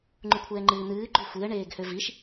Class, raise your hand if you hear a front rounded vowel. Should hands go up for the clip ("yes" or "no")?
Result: yes